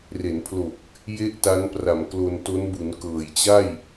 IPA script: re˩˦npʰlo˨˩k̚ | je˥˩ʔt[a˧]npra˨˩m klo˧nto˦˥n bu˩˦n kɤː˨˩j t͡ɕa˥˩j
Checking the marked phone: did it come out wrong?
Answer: yes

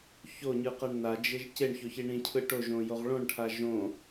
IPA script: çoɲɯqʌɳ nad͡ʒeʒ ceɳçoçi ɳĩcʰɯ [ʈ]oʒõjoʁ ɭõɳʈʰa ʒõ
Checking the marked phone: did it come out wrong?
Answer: no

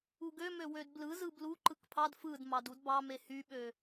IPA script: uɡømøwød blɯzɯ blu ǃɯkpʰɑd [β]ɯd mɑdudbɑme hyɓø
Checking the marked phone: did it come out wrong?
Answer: yes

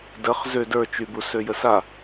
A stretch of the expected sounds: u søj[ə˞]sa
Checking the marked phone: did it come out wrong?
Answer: yes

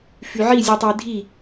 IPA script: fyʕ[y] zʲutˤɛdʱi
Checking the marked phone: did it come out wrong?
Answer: yes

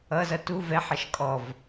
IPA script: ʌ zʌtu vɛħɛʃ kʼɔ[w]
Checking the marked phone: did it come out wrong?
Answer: yes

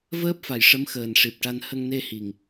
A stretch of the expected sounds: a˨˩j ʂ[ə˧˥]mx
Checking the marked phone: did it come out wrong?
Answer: no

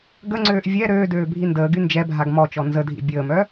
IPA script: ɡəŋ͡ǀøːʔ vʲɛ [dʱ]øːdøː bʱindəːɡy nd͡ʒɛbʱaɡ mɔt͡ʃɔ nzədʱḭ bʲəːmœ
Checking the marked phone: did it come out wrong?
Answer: yes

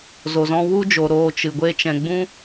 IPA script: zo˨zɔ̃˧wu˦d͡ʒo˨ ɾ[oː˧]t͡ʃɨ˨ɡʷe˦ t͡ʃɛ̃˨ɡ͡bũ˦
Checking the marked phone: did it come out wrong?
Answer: no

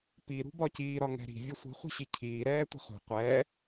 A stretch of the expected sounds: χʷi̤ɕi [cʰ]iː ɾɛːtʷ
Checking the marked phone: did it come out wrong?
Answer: no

